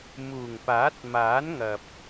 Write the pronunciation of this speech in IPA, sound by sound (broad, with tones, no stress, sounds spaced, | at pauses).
m uː˨˩ ŋ p aː˨˥ t̚ m aː˨˥ n ŋ ɐ˨ p̚